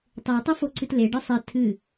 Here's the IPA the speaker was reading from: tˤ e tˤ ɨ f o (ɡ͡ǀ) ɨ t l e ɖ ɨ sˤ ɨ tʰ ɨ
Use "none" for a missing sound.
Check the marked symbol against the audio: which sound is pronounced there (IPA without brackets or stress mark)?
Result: ǀ